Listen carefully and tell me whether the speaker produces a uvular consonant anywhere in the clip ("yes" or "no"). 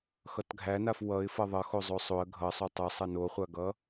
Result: yes